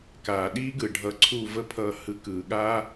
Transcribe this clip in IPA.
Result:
kaː˨ɗiː˦ɡɯ˨ɖʱʌ˨˦ ǀʰu˦˨və˦pʰʌː˧ hɯ˧kɯː˨ɠaː˦

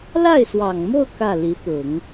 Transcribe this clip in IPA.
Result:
la˥˩ɪ̯swɑ˨˩ŋmo˥˧ʊ̯ kä˥˩li˧˥t̪ʊ˨˩˦ŋ

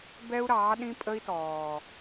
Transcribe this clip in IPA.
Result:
bɛ˦u̯ɾɑː˨˦ɗĩ˦ pʼə˦i̯tɔː˨

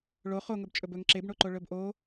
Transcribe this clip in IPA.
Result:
ɭo χoŋɵbt͡ʃʼɵb ɵŋ ǁebɳoǃo ɭɵbʔo

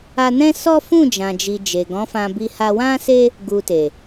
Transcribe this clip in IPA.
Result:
a˧nɛ̃˦sɔ˦ fũ˦˨d͡ʒã˨d͡ʒi˨ d͡ʒe˨ɡɔ̃˨˦fã˧bi˧ ha˧wã˦se˦ | ɡu˧te˨

